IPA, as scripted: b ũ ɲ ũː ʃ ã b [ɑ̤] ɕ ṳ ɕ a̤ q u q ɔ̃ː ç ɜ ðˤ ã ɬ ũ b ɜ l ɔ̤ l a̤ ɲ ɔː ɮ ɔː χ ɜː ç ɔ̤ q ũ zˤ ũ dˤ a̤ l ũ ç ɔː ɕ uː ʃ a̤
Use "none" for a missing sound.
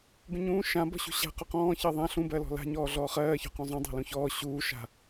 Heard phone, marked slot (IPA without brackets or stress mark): ɔ̤